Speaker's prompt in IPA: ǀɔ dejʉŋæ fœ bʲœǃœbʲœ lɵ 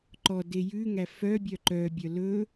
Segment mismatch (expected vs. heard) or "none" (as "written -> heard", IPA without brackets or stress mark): ǀ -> ǃ